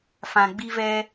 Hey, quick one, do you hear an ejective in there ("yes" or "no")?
no